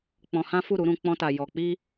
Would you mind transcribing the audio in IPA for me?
k͡p ɔ̃˧ h ã˦ f u˦˨ ɾ u˨˦ ɾ ũ˧ k͡p ɔ̃˦ t a˧ j ɔ˧ k͡p i˦

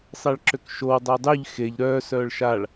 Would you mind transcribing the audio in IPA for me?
sˤ e ɭ ǁ ø k ʃ o w dˤ ə w dˤ y ʎ x e ʎ ɾ œː s œː ɭ ʃ a ɭ

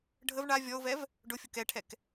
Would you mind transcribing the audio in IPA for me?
ɖʱ ə v ɳ a vʲ ɔ ʊ̯ v ɛ v | ɖ ʊ fʲ ʊ k ɛ ʈʰ ɛ k

